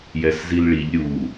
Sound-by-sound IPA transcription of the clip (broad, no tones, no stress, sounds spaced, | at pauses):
j ɛ s z i l ɭ i ʎ ɾʲ u